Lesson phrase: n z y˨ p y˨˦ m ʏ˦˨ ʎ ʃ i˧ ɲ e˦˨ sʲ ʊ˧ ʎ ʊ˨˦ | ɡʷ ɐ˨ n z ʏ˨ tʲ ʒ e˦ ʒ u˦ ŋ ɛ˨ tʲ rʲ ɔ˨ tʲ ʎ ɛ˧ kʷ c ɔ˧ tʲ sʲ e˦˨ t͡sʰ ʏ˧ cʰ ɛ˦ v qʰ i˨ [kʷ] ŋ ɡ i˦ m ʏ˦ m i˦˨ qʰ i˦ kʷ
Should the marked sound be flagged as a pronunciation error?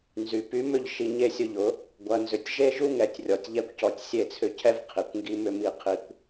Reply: no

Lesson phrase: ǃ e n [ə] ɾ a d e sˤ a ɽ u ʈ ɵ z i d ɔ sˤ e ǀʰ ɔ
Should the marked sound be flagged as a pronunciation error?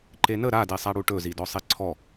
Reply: no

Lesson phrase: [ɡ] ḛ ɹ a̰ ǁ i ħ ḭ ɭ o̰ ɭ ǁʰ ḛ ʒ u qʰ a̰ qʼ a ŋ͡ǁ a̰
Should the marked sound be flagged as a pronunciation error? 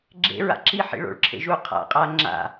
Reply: yes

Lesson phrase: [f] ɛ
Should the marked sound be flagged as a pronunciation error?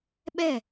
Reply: yes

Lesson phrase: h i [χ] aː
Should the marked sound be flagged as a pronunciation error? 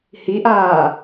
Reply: yes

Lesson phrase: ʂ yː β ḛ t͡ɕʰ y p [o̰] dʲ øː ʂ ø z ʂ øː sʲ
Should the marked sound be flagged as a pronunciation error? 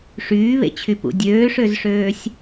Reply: yes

